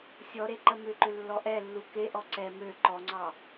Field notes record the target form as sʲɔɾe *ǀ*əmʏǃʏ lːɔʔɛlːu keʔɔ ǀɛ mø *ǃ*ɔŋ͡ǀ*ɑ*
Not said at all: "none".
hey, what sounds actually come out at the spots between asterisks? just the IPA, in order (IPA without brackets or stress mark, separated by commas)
ǃ, ǃ, ɑ